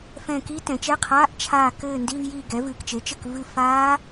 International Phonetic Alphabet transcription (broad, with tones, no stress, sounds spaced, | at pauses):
f ɛ̃˦˨ k i˦˥ t ɛ̃˩˥ t͡ʃ ɛ˧˥˧ qʰ aː˧˥˧ ʔ t͡ʃʰ aː˦˨ k ɘː˦˨ n d i˧˥˧ v j i˦˨ ɡ ɛ˩˥ v ɨː˨ k t͡ʃ e˩˥ t͡ʃ ɘ˦˨ k v ɨː˦˨ f aː˦˥